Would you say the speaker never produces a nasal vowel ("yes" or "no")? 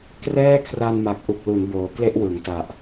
yes